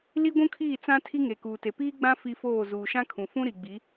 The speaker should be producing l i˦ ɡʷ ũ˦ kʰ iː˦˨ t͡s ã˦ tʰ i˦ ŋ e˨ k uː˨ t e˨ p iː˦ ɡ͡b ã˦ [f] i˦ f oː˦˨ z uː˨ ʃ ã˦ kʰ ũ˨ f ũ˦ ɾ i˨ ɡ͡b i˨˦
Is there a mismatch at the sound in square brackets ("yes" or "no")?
no